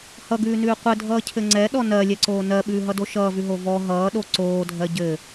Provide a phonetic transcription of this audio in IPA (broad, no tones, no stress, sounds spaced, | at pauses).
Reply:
h ʌ ɡ ʉː n ʉː qʷ ɘ dʱ ʌː cʰ ɘ ŋ͡ǀ ɛ ɗ ɔ n ɜ lʲ ɛ ǀ oː n ɜ ɓ ʉː ɦ ʌ d o ʃ ʌː v ʉ ɦ o v ɔ ɦ ʌː ɗ o ǀ oː dʱ ɜ ɟ ɘ